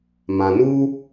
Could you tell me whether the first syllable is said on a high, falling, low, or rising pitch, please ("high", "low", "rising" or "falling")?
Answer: low